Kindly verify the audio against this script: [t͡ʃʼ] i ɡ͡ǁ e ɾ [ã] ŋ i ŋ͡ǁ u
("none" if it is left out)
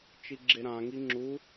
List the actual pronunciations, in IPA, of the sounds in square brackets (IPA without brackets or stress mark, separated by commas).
t͡ʃ, ã